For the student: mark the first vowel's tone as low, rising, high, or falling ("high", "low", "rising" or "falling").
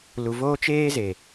low